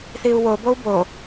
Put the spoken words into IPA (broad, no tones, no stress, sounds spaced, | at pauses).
θ i u̯ w o b o u̯ b o